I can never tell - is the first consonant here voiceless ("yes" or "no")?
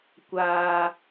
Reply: yes